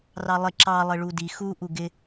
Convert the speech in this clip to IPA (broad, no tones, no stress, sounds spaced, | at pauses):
r ɑ lˠ ɪ ǁ ɑ lˠ ɪ ɭ u d i x u ʔ u ɡ ɪ